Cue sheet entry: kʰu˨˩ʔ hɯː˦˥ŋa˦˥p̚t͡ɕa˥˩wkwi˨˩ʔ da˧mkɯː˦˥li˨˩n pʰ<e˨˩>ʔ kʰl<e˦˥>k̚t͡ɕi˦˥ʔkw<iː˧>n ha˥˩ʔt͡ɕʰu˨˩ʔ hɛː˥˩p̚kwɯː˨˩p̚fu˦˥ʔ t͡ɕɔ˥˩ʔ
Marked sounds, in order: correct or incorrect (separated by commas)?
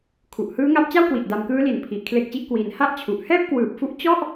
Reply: incorrect, correct, correct